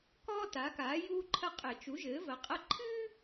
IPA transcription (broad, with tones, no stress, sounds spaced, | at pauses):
k ɔː˥ t a˩˥ k aː˩˥ j uː˥ ǃʰ ɐ˥ qʼ ɘ˧˩˧ t͡ʃ u˩˥ ʒ ɘː˩˥ v ɐ˩˥ qʼ ɐ˥ ǃʰ ɨː˥